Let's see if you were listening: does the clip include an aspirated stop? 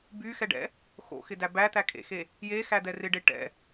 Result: no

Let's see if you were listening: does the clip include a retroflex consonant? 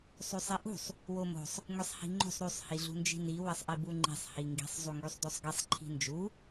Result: no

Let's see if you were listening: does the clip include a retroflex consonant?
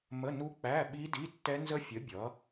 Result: no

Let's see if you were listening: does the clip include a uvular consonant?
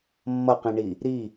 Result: yes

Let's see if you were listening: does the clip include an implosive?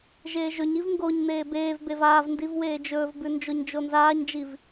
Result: no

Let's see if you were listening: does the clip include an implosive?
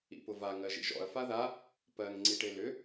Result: no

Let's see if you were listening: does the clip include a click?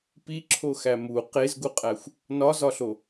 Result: yes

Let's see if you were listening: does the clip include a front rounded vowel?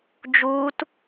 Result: no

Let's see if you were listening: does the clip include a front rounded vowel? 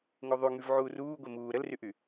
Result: yes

